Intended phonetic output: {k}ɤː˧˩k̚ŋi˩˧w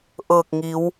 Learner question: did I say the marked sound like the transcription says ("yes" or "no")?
no